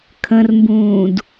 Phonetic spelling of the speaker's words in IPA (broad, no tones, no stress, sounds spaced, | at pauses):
kʰ ə̃ r m b ũː d